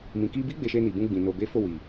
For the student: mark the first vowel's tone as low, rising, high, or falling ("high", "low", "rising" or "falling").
low